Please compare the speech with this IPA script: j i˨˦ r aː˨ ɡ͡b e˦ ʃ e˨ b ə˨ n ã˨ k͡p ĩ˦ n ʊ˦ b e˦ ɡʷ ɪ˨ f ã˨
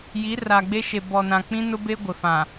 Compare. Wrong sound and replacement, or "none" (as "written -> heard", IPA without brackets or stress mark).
ə˨ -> ɔ˨